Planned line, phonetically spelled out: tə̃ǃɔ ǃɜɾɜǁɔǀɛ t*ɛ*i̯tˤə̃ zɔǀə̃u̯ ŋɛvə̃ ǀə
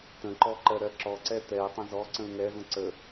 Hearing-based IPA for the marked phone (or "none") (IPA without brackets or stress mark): ɛ